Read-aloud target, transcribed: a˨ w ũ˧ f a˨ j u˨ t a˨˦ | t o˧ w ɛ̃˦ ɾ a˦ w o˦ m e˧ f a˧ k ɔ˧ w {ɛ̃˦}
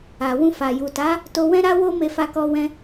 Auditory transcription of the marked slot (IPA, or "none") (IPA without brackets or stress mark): ɛ̃˦